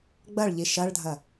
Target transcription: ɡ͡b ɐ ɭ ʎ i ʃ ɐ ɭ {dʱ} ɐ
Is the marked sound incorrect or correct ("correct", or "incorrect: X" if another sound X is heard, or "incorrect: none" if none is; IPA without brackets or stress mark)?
correct